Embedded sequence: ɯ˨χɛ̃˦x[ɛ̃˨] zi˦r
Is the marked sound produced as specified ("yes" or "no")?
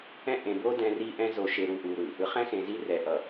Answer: no